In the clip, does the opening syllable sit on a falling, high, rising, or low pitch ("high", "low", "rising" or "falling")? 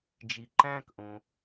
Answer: low